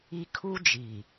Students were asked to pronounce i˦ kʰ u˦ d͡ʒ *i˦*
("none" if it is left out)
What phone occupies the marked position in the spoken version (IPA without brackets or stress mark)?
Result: i˨